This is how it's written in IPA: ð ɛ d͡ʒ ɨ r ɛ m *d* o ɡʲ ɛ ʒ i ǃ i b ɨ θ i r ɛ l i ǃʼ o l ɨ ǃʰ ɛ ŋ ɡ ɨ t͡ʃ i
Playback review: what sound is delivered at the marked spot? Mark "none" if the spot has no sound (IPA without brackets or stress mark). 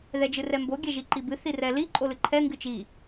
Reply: b